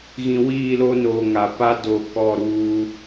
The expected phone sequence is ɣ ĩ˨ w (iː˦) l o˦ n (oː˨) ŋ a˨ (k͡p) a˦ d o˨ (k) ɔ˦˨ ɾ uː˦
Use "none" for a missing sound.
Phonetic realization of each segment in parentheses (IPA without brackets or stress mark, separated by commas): iː˦˨, oː˨, p, k